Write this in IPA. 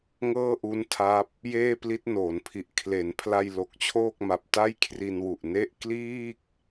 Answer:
ŋ ɤː˥˩ ʔ u˦˥ n tʰ a˦˥ p̚ | j eː˥˩ p l i˦˥ t̚ n oː˩˦ n pʰ i˨˩ ʔ kʰ l e˩˦ n pʰ l a˧ j l o˨˩ k̚ t͡ɕʰ oː˥˩ k̚ m a˨˩ p̚ t a˥˩ j kʰ r i˧ n w u˨˩ ʔ n e˥˩ ʔ k l iː˥˩ k̚

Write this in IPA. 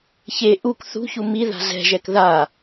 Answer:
ç e ʔ u k θ ṳ ç u m i ð a̤ z ɛ̤ ʒ ɛ k ð a

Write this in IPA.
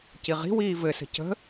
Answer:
c i ʁ i̤ w iː v ɘ s ə̤ c ə̤

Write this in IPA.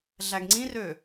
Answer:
ɮ æ ɡ ŋ͡ǀ ĩ r ø

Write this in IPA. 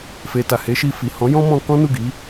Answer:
f e˨ t a˨ h e˨˦ ʃ i˧ f i˨ h ɔ̃˨˦ j ɔ̃˦ m ɔ̃˧ k ɔ̃˦ n u˦˨ ɡ i˨˦

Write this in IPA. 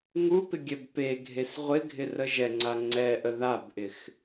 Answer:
ŋ u p ɪ ɡʲ ɛ b p e ɡʱ e s ʁʷ ɪ ɡʱ ɪ r ə ʒ ɛ ŋ͡ǀ a ŋ͡ǀ ɛ ʔ ə ð a b ʔ ɪ x

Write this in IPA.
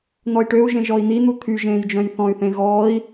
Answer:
n̪ ɔ i̯ ʈ ø u̯ ʒ ẽ ʒ ɔ i̯ n̪ i n̪ u t̪ʰ y ʒ ẽː j d͡ʒ œ̃ j θ ɔ̃ y̯ θ ẽ ɣ ɔː i̯

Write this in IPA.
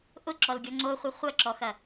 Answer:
ʔ ʊ ǁ ɔ l ɡʲ ɔ ŋ͡ǀ o χʷ ɪ χʷ ɐ ǁ ɔ x ɐ

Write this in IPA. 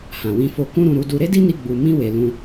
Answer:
h ã˨ w ĩ˧ f o˧ k ũ˦ ɾ ũ˧ ɾ u˧ d u˧ ɾ e˦ d i˦ n i˧ ɡ͡b u˨ m ĩ˧ w e˨ l ũ˧

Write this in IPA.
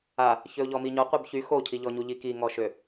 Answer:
a | ç ø ʊ̯ ʎ ɔ m i ɲ ɔ qʷ œ b ç y x o cʰ i ʎ ɔ ɲ u ʎ i k i ŋ ɔ ʃ ø

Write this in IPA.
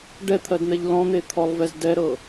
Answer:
ɖ ɛ t̪ʰ ɜ d n̪ ɛ ʎ l ɔ̃ n̪ e t̪ʰ ɔ lˠ v ɛ z d ɛ ɾ ɤ

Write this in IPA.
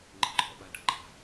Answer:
ŋ͡ǃ e̤ ǃʰ ɔ̰ ɓ a ɖ ʌ ɡ͡ǃ a̤

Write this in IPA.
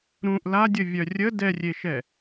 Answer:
ɾ ũ ʔ l a dʲ ə vʲ œ rʲ ə d ɛ rʲ e ʃ ɛ

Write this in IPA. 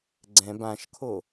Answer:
ɡ͡ǀ ɛ̃ b ã ʃ kʰ o

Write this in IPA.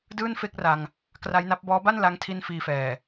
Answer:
d ɯː˥˩ n f e˥˩ k̚ r a˧ ŋ | k r a˦˥ j n a˦˥ p̚ b ɔː˦˥ b a˥˩ n l a˦˥ ŋ tʰ i˧ n f iː˧ f ɛː˨˩

